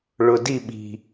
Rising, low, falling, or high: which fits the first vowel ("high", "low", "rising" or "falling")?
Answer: low